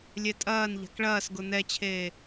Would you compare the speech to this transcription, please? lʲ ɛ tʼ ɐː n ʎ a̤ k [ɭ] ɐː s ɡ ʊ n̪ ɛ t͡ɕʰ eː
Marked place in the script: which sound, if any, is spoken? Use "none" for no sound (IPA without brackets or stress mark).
ɭ